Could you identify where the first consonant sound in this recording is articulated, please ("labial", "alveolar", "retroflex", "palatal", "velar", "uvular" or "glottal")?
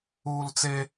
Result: alveolar